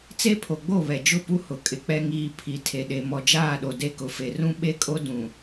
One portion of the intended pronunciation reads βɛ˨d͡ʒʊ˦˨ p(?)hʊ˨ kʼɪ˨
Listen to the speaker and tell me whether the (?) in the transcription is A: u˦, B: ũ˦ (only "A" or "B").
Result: A